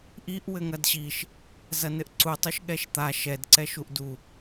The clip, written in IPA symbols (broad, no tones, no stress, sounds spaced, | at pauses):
ʔ i ʔ w ɘ ŋ ɐ d ɕ i ʃ | z ɐ n ɘ ʔ ǀ u tˤ u ʃ ɠ ɛ ʃ t̪ a ʃ ɛ d ǀ ɛ ʃ u ʔ d u